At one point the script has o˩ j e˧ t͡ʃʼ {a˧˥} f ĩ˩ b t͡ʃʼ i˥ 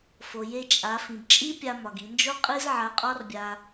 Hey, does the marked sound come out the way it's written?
no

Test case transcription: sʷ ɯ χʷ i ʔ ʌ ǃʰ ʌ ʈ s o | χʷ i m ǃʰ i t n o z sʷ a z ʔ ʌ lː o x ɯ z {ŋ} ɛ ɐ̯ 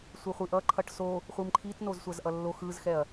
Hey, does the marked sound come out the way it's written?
no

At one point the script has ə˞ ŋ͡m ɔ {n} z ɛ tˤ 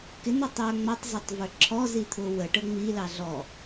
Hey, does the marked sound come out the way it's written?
no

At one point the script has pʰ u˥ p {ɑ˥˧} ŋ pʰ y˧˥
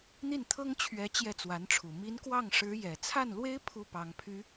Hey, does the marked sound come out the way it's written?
no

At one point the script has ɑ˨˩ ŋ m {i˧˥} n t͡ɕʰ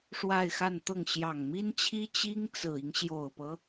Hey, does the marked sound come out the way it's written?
no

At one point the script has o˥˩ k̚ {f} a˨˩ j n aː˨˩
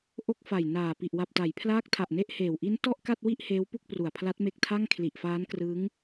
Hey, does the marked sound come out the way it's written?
yes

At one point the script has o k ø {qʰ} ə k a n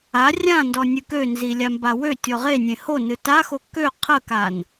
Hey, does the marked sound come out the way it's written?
yes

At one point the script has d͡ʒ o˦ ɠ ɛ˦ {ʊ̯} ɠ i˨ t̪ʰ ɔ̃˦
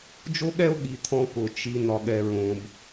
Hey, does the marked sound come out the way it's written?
yes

